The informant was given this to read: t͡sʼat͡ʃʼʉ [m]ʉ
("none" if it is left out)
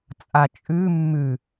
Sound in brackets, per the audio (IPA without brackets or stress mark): mː